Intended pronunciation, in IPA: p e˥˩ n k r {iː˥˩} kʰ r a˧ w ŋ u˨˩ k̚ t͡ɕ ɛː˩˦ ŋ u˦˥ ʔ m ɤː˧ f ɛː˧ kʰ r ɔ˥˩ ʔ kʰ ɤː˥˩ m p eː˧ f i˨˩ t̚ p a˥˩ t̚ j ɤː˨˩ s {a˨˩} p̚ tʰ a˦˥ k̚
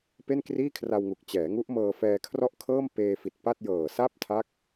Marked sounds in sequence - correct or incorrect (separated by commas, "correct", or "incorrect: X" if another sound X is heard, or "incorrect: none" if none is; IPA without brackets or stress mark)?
correct, incorrect: a˥˩